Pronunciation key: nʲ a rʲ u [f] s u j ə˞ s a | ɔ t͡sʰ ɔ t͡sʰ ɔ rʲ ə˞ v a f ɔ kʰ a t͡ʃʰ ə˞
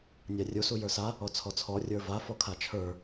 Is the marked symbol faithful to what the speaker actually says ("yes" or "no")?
no